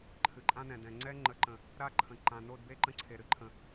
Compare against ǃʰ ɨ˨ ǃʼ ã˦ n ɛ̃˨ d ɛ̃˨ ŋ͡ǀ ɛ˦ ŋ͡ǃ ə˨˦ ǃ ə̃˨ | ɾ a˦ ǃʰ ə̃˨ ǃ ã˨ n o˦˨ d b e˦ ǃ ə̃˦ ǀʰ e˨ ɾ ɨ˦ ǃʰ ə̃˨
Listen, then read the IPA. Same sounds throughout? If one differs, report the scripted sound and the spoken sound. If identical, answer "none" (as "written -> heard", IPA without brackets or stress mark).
none